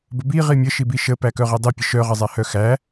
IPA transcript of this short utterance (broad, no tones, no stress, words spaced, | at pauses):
bəbi ʁimʲə ʃibiʃə pækœʁidˤi pʲəʃœ ʁəzˤæhœxæ